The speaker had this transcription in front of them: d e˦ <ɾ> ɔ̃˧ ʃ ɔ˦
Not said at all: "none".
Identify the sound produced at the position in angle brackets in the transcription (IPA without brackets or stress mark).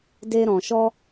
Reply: ɾ